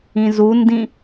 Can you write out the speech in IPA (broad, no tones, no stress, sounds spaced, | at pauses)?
ĩ z u n d ĩ